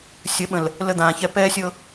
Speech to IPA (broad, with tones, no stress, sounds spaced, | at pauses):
sʲ ə˨˦ ɓ ə̃˨ l | l ə˦ d̪ ãː˨ ç ɛ˦ p ɛː˦ sʲ ɤ˦